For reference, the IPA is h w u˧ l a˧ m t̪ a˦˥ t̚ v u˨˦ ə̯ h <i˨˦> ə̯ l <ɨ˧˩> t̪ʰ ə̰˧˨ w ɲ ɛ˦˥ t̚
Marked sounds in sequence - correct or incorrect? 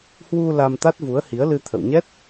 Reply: correct, incorrect

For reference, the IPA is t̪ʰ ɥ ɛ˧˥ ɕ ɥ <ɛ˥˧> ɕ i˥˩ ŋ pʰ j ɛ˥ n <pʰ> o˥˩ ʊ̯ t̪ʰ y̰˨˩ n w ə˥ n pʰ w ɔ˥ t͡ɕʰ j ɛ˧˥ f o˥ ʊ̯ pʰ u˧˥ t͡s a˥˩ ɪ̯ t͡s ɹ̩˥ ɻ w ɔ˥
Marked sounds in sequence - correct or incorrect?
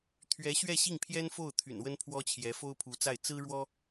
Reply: correct, incorrect

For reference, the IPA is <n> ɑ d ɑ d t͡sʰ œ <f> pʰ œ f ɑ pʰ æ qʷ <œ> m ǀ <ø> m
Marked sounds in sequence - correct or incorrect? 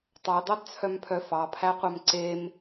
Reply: incorrect, incorrect, correct, incorrect

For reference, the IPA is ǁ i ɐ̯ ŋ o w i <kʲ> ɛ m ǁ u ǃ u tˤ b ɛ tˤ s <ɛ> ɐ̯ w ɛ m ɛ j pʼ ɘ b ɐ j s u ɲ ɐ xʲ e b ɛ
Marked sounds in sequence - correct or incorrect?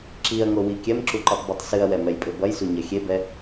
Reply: correct, incorrect

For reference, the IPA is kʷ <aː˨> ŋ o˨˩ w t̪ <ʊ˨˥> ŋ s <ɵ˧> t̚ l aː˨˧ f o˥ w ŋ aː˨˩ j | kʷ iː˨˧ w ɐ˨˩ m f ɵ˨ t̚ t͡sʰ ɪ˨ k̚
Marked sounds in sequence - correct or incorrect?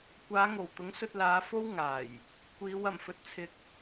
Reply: incorrect, correct, correct

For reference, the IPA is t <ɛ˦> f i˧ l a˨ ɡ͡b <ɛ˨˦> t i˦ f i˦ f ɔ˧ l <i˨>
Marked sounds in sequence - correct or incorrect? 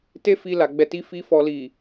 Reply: incorrect, correct, correct

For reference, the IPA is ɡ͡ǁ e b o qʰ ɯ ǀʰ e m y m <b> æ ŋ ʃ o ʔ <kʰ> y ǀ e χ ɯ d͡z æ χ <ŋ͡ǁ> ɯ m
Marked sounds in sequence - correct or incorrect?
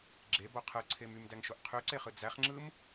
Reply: incorrect, incorrect, correct

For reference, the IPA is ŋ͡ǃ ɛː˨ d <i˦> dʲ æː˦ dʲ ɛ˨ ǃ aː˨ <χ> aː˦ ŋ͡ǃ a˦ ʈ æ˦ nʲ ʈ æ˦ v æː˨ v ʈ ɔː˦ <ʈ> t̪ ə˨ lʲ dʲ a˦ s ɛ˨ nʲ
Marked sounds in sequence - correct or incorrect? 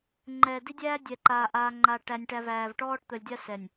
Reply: correct, incorrect, correct

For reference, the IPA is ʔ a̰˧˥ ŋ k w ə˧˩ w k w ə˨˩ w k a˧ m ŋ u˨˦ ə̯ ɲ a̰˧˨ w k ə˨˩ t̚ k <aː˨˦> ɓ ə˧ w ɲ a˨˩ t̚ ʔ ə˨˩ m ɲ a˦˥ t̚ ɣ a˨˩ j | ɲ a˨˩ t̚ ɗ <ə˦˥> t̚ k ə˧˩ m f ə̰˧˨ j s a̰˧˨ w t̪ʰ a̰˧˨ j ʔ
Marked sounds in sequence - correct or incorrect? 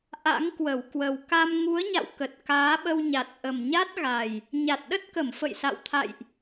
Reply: correct, correct

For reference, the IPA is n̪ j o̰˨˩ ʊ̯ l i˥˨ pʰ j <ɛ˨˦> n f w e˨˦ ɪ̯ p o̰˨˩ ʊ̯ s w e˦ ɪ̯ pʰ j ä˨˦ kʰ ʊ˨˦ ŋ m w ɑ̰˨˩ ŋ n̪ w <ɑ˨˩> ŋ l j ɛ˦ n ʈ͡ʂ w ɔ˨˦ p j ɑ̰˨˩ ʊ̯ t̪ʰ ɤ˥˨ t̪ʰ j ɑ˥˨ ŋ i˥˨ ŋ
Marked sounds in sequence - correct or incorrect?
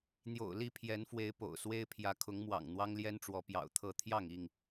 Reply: correct, incorrect

